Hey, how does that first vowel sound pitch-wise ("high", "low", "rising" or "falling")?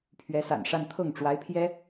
rising